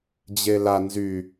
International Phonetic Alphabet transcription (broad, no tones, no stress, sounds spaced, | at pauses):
d͡ʑ e l a n z y